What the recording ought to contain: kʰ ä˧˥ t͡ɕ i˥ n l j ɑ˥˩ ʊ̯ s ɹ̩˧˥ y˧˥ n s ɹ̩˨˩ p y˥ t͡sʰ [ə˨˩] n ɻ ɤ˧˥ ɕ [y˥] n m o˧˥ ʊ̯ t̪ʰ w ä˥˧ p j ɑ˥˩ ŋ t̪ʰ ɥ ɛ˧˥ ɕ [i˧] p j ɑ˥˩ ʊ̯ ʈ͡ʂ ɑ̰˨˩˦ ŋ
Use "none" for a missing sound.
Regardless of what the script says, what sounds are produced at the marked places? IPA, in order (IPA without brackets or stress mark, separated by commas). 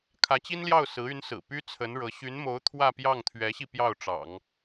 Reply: ə˧˥, y˧˥, i˧